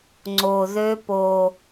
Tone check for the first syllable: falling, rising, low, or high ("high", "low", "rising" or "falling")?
low